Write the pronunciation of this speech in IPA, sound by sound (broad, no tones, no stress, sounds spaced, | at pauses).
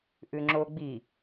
ʔ ʉ ŋ͡ǁ o ɡ͡b i